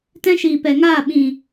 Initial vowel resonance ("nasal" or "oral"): nasal